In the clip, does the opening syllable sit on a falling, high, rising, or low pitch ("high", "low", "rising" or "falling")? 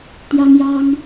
high